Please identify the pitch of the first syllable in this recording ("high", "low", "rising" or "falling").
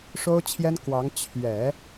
high